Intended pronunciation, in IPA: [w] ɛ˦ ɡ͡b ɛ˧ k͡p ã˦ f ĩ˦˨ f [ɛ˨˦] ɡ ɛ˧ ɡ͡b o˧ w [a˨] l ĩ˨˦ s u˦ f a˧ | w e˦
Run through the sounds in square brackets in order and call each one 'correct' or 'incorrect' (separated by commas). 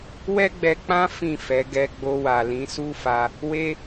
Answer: correct, correct, correct